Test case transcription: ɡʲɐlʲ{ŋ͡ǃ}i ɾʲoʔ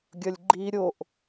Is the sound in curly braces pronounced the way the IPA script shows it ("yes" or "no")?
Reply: no